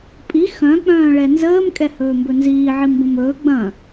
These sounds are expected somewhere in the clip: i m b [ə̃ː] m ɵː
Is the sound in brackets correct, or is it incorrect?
incorrect